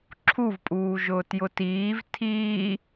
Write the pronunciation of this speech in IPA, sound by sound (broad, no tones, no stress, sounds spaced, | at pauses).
ǁʰ u v pʼ uː ʒ ʊː t j ʊ t iː v tʰ iː